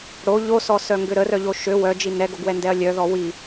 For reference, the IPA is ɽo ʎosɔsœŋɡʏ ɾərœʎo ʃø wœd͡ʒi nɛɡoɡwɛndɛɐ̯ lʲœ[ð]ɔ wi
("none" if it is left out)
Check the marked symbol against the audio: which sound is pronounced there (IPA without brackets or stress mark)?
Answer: ð